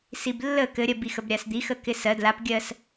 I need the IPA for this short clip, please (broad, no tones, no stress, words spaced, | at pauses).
siblːə kɘɾʲɜbi xəbɾʲasd̪ixə kɪsɜ dlapɡʲɜs